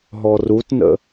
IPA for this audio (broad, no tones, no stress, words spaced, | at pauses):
ɦɔrutnə̰